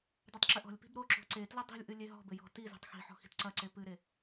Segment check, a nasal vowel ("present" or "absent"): absent